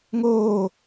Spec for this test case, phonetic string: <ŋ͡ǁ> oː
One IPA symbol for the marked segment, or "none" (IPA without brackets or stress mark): ŋ